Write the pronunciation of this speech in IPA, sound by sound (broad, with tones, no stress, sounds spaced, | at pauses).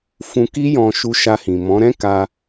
f ũ˧ k i˦ j ɔ̃˧ ʃ u˧ ʃ a˧ h ĩ˨ m ɔ̃˨˦ ɾ ɛ̃˦ k a˧